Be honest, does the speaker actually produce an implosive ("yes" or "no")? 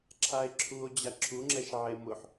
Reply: no